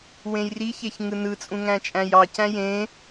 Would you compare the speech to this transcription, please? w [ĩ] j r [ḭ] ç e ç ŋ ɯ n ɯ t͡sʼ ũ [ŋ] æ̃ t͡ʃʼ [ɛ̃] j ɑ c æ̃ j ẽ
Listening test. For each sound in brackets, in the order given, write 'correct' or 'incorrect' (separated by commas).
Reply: incorrect, incorrect, correct, incorrect